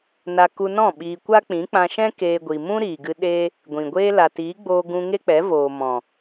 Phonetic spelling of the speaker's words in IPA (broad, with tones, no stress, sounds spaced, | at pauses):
n a˧ k u˧ n ɔ̃˦˨ ɓ iː˧ kʷ a˦ k͡p ĩ˨˦ k͡p ã˧ ʃ ɛ̃˦ k eː˧ ɡʷ i˨ m ũ˦ ɾ iː˨ ɡ ɨ˧ ɗ e˦ | ɡʷ ĩ˨ ɡʷ eː˦ l a˨ t iː˨˦ ɡ͡b oː˧ ɡ ũ˧ ŋ e˦ k͡p ɛ˨˦ v oː˨ m ɔ̃˨